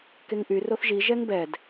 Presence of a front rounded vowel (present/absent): present